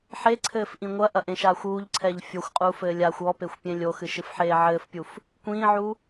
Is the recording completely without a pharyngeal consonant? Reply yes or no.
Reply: no